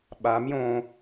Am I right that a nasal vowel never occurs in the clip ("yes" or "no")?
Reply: no